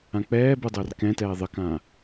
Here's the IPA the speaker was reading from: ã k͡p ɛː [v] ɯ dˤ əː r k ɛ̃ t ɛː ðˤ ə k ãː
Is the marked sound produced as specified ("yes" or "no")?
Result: no